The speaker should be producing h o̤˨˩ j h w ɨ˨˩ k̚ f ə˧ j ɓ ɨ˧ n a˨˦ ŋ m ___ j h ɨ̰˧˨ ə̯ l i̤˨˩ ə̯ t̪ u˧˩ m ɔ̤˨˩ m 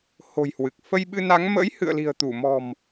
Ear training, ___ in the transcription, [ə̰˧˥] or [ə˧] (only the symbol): ə̰˧˥